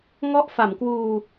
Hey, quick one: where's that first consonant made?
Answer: velum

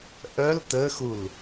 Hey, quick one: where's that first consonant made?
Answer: throat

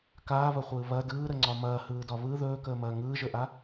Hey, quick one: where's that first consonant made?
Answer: velum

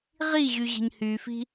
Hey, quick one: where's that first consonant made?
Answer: uvula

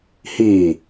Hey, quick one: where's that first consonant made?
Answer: throat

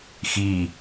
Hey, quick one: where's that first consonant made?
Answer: velum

